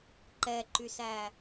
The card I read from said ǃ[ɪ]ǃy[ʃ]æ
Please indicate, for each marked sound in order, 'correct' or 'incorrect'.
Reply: incorrect: ɛ, incorrect: s

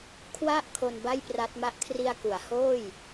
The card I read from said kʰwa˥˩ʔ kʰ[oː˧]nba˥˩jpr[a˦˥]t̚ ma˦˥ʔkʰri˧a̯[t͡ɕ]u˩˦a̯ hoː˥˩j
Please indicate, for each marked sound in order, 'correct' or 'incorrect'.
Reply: incorrect: o˧, correct, incorrect: k

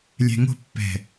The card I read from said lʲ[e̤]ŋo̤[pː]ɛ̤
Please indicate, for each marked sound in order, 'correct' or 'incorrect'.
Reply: incorrect: ɛ̤, correct

